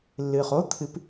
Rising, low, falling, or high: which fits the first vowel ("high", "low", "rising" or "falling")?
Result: low